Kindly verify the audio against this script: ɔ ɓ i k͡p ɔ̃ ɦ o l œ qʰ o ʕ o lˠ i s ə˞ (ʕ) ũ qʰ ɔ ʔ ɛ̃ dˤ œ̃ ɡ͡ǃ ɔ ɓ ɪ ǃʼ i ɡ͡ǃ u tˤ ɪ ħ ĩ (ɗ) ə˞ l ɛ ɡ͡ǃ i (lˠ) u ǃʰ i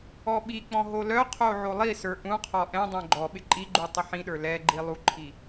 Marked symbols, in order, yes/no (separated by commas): no, yes, yes